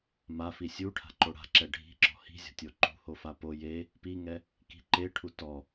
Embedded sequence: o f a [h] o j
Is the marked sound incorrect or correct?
incorrect